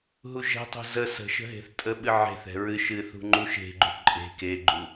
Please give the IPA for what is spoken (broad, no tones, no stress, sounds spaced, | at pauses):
ɦ u ʒ ɛ̤ tˤ ṳ z ə s ə̤ ʃ ə̤ ɦ e̤ θ tʼ ə ɓ ɨ ʕ e̤ θ ɛ̤ ɹ ɨ ʃ ɨ θ ṳ ŋ͡ǃ u ʃ e̤ ɡ͡ǃ ṳ ǃʼ e̤ k e ɡ͡ǃ u